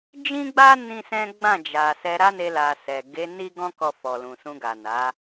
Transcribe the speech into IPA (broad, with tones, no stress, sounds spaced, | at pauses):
d͡ʒ ĩ˦ ɡ͡b a˦ n ĩ˦ s ɛ̃˦ ɡ͡b ã˦˨ d͡ʒ a˨ s ɛ˧ ɾ a˦ n e˧ l a˨ s ɛ˨ ɡ e˨˦ n i˦ ɡ ɔ̃˦ k ɔ˧ f ɔ˨ l ũ˨ s ũ˧ ɡ a˨ n a˨˦